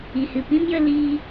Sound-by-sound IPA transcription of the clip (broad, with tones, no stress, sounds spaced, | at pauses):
i˨ h ɨ˨ p ĩ˦ m j ə˧ l iː˦